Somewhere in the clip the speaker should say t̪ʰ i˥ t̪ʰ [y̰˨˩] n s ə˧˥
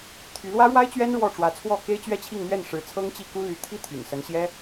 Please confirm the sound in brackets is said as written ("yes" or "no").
yes